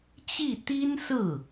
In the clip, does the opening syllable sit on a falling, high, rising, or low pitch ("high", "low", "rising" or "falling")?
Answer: falling